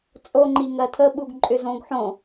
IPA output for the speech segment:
t͡sʼ o ŋ͡ǃ i ŋ ɜ tʰ ə ɓ u ɡ ǃʼ ʏ z õ ɡ ħ õ

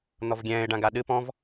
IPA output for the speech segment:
n̪ ɔ v ɡʲ ɛ̃ː ɪ̯ ɖ ã ɡ a ɗ ɨ p ɔ̃ v

